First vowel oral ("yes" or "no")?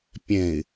no